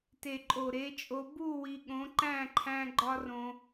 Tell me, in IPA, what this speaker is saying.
t e˨ ǃʼ o˨ ɾ e˨˦ t͡ʃʼ o˧ b u˦˨ w i˧ ɠ õ˨˦ ǃ æ̃˦˨ ǃʰ æ̃˧ ɡ͡ǃ ɒ˦ r õ˧

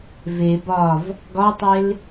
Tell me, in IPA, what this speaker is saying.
v e b ɒ v | ɡ ɒ tˤ e l

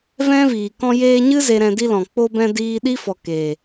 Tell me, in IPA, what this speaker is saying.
v ɛ̃˦ v iː˨ k ɔ̃˧ j eː˧ ɲ ɨ˦ z e˧ ɾ ɛ̃˧ d i˦ l ɔ̃˨ k͡p o˧ b ɛ̃˧ d iː˧ ɗ i˦ f ɔ˨ k e˨

